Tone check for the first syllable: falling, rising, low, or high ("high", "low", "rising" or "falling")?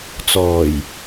low